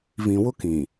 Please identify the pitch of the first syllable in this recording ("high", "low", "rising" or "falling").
low